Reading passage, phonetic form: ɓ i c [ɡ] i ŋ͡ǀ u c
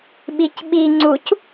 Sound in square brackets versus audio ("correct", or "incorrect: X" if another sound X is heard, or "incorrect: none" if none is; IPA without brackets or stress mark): incorrect: ɓ